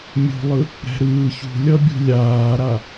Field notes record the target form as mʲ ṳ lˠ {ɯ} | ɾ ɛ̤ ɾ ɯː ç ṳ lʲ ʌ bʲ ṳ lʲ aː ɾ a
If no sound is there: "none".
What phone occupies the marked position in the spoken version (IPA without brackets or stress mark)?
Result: ɯ